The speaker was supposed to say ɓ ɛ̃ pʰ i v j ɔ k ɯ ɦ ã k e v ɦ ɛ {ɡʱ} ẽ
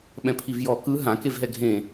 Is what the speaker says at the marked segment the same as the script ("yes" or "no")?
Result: yes